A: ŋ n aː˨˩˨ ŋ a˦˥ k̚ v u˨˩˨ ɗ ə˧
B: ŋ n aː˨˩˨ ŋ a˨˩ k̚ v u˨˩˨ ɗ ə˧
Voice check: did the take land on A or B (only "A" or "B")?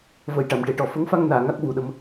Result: A